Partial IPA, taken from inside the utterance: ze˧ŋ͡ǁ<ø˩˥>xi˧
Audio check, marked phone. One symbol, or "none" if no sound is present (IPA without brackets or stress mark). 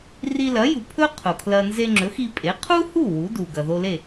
ɵ˩˥